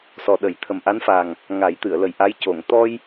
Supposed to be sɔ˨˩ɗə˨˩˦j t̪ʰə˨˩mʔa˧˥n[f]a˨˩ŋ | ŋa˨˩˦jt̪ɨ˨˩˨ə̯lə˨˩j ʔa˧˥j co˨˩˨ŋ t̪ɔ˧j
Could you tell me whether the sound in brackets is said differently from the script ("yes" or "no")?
no